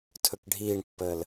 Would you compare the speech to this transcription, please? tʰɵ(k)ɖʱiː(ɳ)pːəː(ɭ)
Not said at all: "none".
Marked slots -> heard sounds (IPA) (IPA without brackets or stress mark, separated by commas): k, ɳ, l